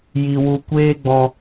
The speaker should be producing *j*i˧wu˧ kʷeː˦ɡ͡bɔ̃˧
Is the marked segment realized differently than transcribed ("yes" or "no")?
no